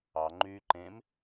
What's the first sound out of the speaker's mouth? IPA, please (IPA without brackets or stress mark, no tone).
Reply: ɑ